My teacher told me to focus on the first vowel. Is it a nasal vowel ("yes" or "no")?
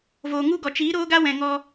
no